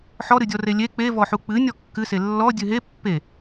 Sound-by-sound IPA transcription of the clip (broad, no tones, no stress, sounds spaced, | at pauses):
ħ ɔ ɾ ɨ dʲ ɔ r e lʲ e k͡p e v ɔ ħ u k͡p ɨ nʲ ɔ kː ɨ s e lː ɔ dʲ ɨ ɦ e pː e